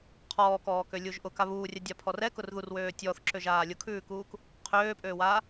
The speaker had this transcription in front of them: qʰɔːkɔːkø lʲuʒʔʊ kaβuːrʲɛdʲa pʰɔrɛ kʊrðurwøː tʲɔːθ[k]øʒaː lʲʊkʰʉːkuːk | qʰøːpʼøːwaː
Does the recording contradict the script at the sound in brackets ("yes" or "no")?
yes